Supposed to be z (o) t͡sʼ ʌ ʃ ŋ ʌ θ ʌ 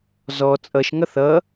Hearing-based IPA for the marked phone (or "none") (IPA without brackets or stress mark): ɔ